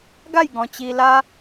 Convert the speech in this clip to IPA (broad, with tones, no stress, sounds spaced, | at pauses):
ɡ a˥˧ j ɡ ɔ̃˧ t͡ɕ i˧ l a˦